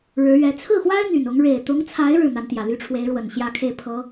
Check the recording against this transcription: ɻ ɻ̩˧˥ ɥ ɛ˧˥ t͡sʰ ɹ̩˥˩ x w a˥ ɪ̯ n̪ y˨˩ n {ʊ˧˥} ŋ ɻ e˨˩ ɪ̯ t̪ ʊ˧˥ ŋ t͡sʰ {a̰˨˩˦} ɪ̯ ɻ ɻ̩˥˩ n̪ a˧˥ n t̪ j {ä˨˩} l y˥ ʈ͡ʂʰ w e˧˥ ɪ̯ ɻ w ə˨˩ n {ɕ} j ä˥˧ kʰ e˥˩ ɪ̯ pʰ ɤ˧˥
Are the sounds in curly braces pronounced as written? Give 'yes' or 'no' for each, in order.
yes, no, yes, yes

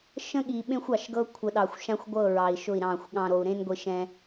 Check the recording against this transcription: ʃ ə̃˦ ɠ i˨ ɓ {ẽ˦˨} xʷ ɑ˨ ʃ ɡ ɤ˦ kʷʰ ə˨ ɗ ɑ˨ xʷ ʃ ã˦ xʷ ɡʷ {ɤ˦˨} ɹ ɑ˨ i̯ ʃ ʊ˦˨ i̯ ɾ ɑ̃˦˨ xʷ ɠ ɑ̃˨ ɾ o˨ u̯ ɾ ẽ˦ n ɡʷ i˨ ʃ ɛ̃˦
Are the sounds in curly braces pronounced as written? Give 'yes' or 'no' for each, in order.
no, yes

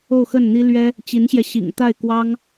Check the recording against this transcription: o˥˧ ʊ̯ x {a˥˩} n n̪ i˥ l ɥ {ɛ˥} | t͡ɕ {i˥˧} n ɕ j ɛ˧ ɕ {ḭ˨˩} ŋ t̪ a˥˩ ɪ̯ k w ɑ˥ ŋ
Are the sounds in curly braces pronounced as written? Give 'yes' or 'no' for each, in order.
no, yes, no, yes

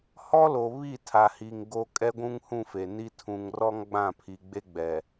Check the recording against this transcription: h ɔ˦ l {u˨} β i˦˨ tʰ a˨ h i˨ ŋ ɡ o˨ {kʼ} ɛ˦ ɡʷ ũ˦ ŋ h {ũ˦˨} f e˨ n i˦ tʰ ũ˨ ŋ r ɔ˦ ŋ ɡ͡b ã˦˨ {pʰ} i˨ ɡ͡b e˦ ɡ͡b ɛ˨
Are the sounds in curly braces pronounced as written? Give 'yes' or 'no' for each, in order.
no, yes, yes, yes

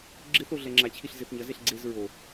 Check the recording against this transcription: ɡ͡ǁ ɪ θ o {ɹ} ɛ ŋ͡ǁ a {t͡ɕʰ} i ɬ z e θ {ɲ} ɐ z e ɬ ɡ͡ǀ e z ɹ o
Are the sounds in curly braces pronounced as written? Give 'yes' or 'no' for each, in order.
no, yes, yes

